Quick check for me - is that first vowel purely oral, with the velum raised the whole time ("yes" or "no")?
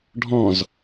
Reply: no